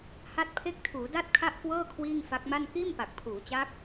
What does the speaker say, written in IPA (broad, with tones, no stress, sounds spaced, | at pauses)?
h a˥˩ t̚ pʰ e˦˥ k̚ tʰ uː˩˦ d a˥˩ t̚ kʰ a˥˩ ʔ k w ɤː˥˩ kʰ w iː˥˩ ŋ f a˦˥ k̚ m a˥˩ n k iː˥˩ m p a˨˩ k̚ pʰ uː˩˦ t͡ɕ aː˦˥ k̚